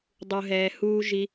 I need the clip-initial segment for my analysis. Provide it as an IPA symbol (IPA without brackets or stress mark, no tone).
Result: dˤ